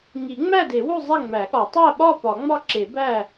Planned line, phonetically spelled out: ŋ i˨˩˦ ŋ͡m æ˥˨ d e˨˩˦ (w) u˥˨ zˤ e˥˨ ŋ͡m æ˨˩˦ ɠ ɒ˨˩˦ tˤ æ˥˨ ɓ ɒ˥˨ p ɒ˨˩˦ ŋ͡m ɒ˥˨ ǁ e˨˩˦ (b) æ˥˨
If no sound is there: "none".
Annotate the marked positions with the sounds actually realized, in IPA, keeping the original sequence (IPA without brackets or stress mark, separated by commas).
w, b